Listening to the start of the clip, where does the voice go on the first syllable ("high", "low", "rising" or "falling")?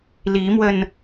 rising